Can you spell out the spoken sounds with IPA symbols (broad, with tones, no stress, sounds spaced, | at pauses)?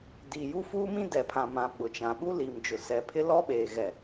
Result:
d i˨ j u˦ f uː˦ m ĩ˦ d ɛ˨ pʰ ã˨ m ã˨ ɓ ʊ˨ t͡ʃ ã˨ ɓ u˦ l i˨ m d͡ʒ ʊ˨ s ɛ˨ pʰ ɪ˦ l ɔ˦ ɓ eː˨ ɣ ɛ˨